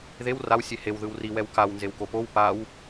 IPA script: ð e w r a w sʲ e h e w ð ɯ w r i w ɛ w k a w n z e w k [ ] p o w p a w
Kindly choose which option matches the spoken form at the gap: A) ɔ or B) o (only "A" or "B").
B